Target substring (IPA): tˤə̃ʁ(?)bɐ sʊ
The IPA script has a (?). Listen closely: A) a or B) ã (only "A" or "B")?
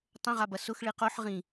A